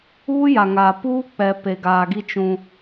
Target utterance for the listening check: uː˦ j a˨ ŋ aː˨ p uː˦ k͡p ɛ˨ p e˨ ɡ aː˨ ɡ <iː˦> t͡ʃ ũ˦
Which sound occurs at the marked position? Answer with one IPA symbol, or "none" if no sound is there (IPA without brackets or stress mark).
i˦